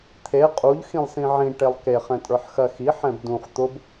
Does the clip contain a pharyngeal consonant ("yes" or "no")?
yes